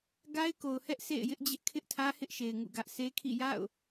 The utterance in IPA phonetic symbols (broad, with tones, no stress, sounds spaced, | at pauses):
ɡ a˦ ɪ̯ k o˨ ʊ̯ h ɛ˦ ʔ sʰ ḛ˦˨ ɪ̯ j ɪ˦ ʔ d͡ʑ ɪ˦ ʔ kʰ ɪ˦ ʔ tʰ ä˦ h ɪ˦ ʔ ʃ e˨ ɪ̯ ŋ ṵ˦˨ ɡ ä˦ ʔ s e˦ kʰ ḭ˦˨ j a̰˦˨ ʊ̯